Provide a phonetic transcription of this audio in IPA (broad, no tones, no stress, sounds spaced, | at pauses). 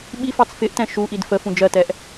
ɓ i f ɑ t͡s f ɪ ʔ t ɛ̃ ʃ u ʔ i d f ə f ũ d͡ʒ ɜ t ɛ ʔ